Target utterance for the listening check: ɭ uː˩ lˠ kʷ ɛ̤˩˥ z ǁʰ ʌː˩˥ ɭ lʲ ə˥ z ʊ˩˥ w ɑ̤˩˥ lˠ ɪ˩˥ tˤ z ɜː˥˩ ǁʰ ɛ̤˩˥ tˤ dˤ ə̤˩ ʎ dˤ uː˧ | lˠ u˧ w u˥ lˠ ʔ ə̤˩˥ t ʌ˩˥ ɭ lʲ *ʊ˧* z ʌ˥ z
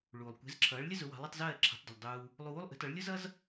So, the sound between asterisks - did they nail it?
no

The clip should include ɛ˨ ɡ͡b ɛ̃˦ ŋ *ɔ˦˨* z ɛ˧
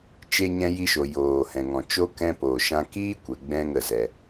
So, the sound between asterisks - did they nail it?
no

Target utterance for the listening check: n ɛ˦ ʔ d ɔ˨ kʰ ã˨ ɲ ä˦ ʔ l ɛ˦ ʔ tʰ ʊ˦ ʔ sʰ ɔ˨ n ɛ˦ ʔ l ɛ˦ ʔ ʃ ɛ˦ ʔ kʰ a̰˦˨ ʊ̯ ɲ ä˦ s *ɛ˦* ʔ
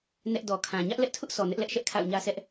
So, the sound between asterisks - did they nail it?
yes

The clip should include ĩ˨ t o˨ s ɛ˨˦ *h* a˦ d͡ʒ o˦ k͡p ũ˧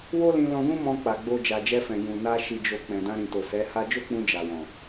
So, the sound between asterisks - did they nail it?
yes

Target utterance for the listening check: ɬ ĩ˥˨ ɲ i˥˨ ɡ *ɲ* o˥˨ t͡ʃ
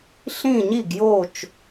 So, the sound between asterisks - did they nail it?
no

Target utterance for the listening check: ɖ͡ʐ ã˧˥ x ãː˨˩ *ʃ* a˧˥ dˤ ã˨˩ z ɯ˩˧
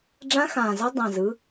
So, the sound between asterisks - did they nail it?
no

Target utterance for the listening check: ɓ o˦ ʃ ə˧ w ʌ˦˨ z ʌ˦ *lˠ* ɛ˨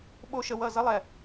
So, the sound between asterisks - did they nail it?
yes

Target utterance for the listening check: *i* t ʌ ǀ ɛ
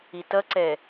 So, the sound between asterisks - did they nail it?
yes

